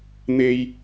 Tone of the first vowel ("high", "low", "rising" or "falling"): high